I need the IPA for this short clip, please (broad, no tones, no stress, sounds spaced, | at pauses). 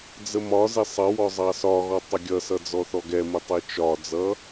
d͡z ə m ɒ z ɪ sˤ ʌ w ɔ zˤ ɑ s ɒ ɣ ɔ tˤ ə ɡʲ ʌ s ʌ d͡z ɔ θ ɔ ɡ ɛ m ʊ tˤ i t͡ʃ ɒ d͡z ʌ